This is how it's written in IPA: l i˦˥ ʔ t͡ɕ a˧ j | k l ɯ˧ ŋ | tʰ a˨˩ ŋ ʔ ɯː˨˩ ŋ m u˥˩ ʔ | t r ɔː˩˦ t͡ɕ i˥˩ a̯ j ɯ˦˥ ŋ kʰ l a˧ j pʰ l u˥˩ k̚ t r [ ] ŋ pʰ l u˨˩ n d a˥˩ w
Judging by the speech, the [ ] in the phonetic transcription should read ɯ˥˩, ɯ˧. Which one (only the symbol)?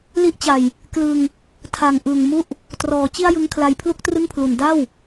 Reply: ɯ˥˩